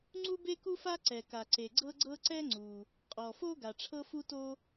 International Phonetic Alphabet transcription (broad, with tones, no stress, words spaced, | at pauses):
ŋ͡ǀu˥be˥ku˥fa˥ ǀɛ˩ka˩ǀe˩ ɡ͡ǀɤ˥ɡ͡ǀɤ˥ ǀɛ˥ŋ͡ǀu˩ | qʼɔ˩fo˥ ɡa˩ʈ͡ʂʰɤ˥fu˥to˥